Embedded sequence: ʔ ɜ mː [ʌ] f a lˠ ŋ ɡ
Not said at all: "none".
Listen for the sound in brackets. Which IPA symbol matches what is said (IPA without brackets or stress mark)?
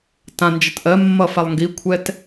ʌ